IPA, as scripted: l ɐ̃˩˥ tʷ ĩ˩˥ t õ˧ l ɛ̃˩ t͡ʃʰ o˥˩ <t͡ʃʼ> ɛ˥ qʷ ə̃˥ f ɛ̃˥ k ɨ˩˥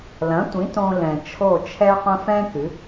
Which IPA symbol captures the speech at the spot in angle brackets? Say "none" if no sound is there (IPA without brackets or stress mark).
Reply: t͡ʃʰ